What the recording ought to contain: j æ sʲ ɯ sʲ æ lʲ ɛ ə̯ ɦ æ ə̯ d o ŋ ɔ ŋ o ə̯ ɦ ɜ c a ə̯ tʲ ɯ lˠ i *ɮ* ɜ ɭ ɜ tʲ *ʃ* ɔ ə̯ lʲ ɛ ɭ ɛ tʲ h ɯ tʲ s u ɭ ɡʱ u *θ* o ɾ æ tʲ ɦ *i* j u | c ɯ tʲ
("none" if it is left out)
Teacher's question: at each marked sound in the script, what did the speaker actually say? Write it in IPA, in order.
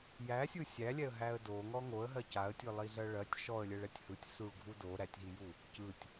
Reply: ɮ, ʃ, d, i

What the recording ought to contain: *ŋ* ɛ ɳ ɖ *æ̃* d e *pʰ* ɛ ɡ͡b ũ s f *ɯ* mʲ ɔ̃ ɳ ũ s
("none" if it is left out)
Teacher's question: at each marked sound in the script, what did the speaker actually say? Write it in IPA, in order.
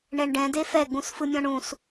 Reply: ɳ, ɛ̃, f, ɯ

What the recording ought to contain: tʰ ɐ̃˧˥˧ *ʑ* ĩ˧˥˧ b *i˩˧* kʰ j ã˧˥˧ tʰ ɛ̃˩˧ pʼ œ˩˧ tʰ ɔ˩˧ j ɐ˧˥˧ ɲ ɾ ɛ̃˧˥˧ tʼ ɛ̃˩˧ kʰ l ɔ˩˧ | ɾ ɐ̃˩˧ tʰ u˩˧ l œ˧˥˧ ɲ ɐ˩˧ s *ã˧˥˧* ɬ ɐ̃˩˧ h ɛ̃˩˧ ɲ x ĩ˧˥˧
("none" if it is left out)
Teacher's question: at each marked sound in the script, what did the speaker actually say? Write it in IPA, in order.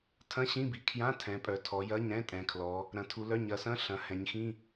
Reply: ɕ, i˩˧, ɐ̃˧˥˧

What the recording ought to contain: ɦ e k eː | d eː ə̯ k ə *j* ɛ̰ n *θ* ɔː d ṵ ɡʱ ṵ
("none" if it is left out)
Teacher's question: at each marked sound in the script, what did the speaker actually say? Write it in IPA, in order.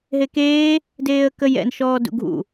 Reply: j, ʃ

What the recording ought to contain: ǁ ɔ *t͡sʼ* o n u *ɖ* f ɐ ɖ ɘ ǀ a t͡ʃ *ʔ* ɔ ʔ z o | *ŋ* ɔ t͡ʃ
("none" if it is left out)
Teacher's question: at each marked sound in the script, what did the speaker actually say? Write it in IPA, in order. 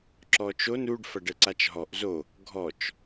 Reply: t͡ʃ, ɖ, ɦ, ɡʱ

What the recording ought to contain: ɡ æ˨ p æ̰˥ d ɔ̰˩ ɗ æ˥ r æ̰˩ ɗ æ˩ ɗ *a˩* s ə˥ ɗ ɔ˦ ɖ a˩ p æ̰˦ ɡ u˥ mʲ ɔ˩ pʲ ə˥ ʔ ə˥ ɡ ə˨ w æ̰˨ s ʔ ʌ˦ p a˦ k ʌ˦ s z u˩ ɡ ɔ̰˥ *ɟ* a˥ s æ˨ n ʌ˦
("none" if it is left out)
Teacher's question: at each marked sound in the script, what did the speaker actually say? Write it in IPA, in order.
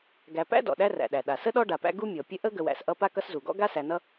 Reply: a˩, ɡ

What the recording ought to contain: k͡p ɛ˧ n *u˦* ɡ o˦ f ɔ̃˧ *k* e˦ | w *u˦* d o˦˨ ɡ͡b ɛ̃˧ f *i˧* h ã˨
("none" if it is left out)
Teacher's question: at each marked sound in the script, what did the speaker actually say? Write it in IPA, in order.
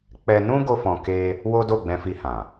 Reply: ũ˦, k, o˦, i˧

